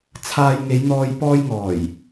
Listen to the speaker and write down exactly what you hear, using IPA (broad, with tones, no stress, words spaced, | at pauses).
t͡sʰaː˧jŋe˨˧jn̪ɔː˧j pɔː˧jŋɔː˨˩j